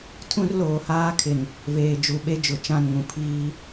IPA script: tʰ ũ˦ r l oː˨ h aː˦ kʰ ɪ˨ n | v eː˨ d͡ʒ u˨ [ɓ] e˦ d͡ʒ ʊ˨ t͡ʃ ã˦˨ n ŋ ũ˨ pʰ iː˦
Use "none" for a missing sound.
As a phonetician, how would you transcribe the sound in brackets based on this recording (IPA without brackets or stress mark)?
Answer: ɓ